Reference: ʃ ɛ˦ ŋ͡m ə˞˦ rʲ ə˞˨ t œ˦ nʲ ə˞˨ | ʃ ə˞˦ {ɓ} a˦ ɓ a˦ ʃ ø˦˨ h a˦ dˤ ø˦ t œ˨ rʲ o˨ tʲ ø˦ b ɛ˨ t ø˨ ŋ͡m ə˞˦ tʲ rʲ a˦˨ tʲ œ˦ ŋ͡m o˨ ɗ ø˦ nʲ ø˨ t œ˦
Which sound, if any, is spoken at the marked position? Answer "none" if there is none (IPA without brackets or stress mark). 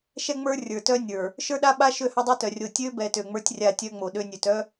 ɗ